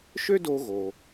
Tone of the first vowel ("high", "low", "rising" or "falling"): high